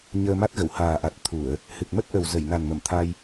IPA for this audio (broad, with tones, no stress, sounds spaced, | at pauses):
ɲ əː˧ m a˦˥ t̚ ɣ ə˧˩ w h aː˨˩ ʔ a˨˩ t̚ t̪ʰ u˧˩˨ ə̯ | h ɨ˨˩ k̚ m ə˦˥ t̚ ʔ ə˨˩ w z ə˧˩ j n a˨˩ n m ə˧˩ m t̪ʰ a˧ j